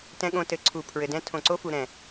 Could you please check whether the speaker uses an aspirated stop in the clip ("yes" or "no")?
yes